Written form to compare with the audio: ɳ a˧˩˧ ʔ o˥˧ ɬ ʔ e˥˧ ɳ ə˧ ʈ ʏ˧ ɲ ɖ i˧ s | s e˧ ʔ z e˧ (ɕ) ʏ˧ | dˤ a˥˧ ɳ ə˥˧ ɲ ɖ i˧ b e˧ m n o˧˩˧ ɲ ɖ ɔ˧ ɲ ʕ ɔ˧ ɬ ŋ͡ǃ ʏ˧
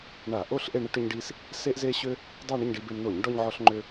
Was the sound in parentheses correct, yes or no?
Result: yes